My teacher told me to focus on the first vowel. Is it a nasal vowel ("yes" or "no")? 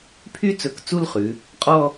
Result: no